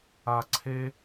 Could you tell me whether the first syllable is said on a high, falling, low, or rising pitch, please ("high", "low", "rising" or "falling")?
low